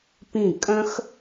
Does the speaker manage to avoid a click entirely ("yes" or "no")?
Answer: yes